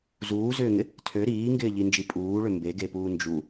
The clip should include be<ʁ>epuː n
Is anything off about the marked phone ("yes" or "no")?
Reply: yes